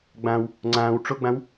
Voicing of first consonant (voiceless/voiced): voiced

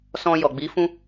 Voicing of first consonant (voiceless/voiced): voiceless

